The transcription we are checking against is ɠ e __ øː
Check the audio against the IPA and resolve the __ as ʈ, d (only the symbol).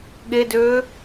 d